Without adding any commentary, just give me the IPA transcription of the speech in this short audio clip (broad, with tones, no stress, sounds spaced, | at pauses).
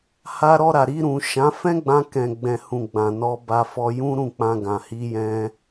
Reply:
h a˧ ɾ ɔ˧ ɾ a˨ ɾ i˧ ɾ ũ˨ ʃ ã˨˦ f ɛ̃˦ ɡ͡b ã˧ k ɛ̃˨ ɡ͡b ɛ̃˨ h ũ˨ ɡ͡b ã˨ n ɔ˧ b a˧ f ɔ˧ j ũ˦ ɾ ũ˦˨ k͡p ã˧ ɡ ã˨ h i˧ j ɛ̃˧